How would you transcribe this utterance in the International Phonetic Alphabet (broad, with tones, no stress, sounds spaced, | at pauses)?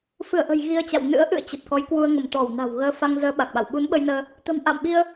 f ɨ˧˩ ə̯ ʔ ə̤˨˩ j ɣ i˧ ə̯ t͡ɕ a̰˧˨ w n ɨ̰˧˥ ə̯ ʔ ɨ̰˧˨ ə̯ t͡ɕ ə˨˩ t̚ k ɔ˨˦ j k w u˧ ə̯ ŋ ə˧˩ m t̪ ɔ˧˩ w n a̤˨˩ w ɣ əː˧ f a˧ ŋ z əː˨˦ ɓ a˨˩ k̚ ɓ a̰˧˨ w ɓ u˨˦ n ɓ ə˧ j n əː˧ | t̪ ə̤˨˩ m ʔ a̰ː˧˨ m ɓ i˧ ə̯